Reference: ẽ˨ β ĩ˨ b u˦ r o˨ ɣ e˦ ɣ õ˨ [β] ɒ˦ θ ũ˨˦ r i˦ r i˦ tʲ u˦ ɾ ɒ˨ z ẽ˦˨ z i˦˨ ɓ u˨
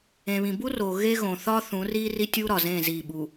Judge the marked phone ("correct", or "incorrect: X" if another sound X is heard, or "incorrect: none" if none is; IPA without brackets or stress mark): incorrect: θ